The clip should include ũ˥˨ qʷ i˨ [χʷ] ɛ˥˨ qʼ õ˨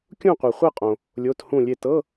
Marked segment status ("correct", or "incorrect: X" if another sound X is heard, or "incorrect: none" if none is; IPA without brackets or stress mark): correct